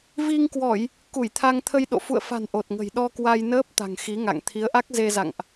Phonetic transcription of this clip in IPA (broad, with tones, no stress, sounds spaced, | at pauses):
v i˧ ŋ k w ɔ˧˩˨ j | k u˧˩ j t̪ʰ a˧ ŋ t̪ʰ ə˧ j ɗ o̰˧˨ f ṵ˧˨ ə̯ f a̤˨˩ n ʔ o˨˩ t̚ ŋ ə̤˨˩ j ɗ ɔ˧ k w a˧ j n əː˦˥ p̚ t̪ a̤˨˩ ŋ x i˨˦ ŋ a̰˧˨ ŋ t̪ʰ i˨˦ ə̯ ʔ a˦˥ k̚ z e˧ z a̰˧˨ ŋ ʔ